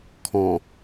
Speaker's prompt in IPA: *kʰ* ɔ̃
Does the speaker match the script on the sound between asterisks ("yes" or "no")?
yes